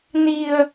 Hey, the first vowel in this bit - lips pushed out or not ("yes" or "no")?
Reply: no